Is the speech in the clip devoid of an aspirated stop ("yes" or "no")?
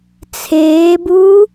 no